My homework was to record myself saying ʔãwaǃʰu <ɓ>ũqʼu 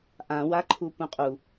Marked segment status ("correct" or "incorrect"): incorrect